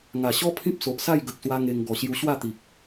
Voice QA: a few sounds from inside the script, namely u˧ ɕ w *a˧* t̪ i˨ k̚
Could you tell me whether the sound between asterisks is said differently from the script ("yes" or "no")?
yes